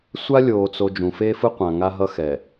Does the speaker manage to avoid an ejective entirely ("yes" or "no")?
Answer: yes